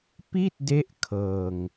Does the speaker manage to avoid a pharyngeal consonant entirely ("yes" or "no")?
yes